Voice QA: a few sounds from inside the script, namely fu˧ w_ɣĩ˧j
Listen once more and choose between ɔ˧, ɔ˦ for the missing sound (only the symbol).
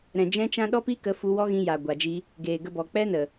ɔ˦